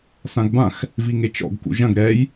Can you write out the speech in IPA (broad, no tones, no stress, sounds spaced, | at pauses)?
s ã ɡ b ã x | v i ŋ e t͡ʃ ɔ̰ ɡ k ṵ ʒ ɐ̃ ɡ ɾ ɛ j